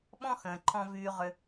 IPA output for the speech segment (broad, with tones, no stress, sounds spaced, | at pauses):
ɓ ɔ̃˦ x ə̃ː˨ ǃʰ ɔ̃˧ v yː˧ ʁ ʏ˧